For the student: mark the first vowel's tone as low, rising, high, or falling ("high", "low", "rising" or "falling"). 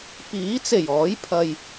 rising